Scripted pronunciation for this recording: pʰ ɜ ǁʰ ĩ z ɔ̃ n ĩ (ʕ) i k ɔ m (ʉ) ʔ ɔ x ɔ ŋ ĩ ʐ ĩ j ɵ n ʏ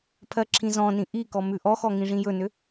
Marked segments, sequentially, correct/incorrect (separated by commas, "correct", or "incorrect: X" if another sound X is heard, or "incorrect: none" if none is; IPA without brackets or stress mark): incorrect: ʔ, correct